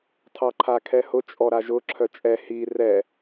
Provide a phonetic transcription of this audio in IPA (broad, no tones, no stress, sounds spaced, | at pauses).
tʰ ɑ ǃʰ a kʰ ɛ h ʊ t͡ʃʼ ɔ ɾ a ʒ ʊ ǁʰ œ t͡ʃʼ ɛ h i r ɛ